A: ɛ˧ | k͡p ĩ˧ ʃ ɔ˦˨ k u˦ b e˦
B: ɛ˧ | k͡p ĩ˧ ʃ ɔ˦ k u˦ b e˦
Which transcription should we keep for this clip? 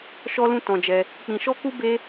B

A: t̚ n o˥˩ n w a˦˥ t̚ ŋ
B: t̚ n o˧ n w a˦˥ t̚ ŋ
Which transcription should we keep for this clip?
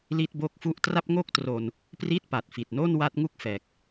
A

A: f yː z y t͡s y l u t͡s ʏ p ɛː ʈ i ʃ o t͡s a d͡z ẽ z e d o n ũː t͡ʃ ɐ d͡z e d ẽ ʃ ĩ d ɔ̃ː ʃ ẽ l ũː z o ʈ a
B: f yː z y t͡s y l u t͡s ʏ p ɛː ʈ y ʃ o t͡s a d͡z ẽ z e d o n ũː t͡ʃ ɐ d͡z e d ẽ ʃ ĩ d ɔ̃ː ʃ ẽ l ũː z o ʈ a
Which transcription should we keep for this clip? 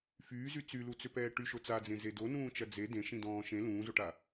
B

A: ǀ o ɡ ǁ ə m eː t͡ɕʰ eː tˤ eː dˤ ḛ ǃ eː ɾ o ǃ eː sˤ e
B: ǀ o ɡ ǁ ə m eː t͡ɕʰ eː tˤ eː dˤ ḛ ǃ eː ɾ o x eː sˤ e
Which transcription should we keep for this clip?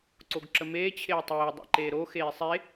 B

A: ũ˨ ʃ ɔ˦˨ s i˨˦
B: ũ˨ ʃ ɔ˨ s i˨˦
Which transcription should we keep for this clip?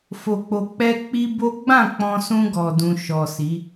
B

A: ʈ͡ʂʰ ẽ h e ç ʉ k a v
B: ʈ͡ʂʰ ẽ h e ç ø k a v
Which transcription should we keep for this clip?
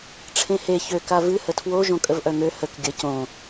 B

